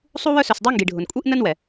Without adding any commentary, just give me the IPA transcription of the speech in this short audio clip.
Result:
sˤ u˥ w œ˥ s œ˨ s dˤ ɛ˥ ŋ ɡ i˩ ɖʱ ʊ˩ n kʷʼ i˥ ʔ n ə˥ n w ɛ˩

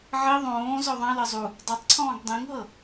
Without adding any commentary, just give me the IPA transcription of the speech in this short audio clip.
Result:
ʕ i ðˤ õː z ɔ ðˤ ã l ɤ zˤ u | dˤ a tˤ ǀʰ ɔ̃ː ɡ dˤ ĩ ŋ ɦ ɤ

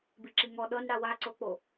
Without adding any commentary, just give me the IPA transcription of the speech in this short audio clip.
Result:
b i ǁ i ŋ ɔ ɗ ɤ n ɽ a w a ǀ o k͡p o

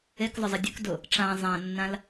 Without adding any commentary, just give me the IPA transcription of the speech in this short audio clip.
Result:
e k zˤ ʊ zˤ ə dʲ ʊ k d ʊ | ʈ͡ʂ ã zˤ ã nː ã l

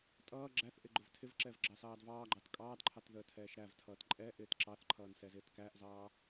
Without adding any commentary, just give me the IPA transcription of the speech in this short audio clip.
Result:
tʼ ʌː ɡ͡ǁ æ θ ʔ ɪ ɡ͡ǃ ʊ v tʰ ɪ v ǁ ɛ v ɡ͡ǁ ɑ s ɑː d v ɑː ɡ͡ǃ ɑ t kʼ ɑː d ǃʰ ɑ t ð əː tʰ ɛː ʃ ɾ æ v tʰ ʌː t ǃʼ ɛ ʔ ɪː t ǁ ɑ θ ǃʰ ʌː n s ɛ z ɪː t k æ ʔ z ɑː

